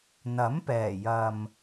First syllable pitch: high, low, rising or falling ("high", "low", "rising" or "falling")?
rising